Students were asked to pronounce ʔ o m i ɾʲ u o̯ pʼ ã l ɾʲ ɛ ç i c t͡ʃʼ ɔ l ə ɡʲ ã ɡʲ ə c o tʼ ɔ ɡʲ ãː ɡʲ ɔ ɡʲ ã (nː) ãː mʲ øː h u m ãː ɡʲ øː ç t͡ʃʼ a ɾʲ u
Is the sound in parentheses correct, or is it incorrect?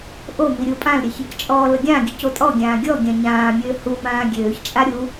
incorrect